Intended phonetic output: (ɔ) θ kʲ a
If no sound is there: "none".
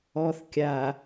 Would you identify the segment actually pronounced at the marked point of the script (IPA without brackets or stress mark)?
ɔ